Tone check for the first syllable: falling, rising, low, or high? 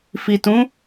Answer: low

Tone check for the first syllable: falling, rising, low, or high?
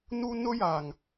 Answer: high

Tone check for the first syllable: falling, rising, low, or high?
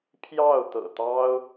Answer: falling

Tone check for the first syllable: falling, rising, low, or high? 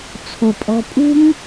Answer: low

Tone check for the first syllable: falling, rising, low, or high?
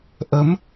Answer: rising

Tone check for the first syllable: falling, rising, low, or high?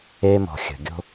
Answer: high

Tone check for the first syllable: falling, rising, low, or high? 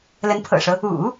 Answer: rising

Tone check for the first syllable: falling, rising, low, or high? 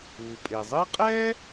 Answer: low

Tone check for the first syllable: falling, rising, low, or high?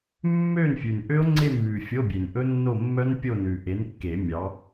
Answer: falling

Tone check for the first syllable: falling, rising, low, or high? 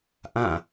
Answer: falling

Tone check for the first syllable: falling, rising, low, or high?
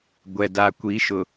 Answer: low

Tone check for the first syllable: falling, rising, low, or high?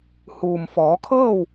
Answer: low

